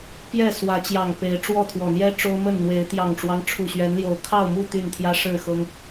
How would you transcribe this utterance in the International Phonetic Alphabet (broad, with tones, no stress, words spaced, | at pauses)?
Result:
pjɛ˥˨ swä˨˦t͡ɕjɑ˨˩ŋ pe˨˦ɪ̯ʈ͡ʂwɔ˥˨ t̪ʰwɔ˨˩n̪jɛ˦ ʈ͡ʂo˦ʊ̯mə˥˨nn̪we˨˦ɪ̯ t̪jɑ˨˩ŋʈ͡ʂwɑ˦ŋ ʈ͡ʂʰu˨˩ɕɥɛ˨˦nljo˨˩ʊ̯ kʰɑ˥˨ʊ̯mu˥˨ t̪y˥˨nt̪ʰjä˦ ʂɻ̩˥˨xɤ˦ŋ